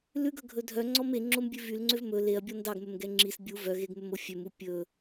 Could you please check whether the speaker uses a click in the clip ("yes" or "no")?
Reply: yes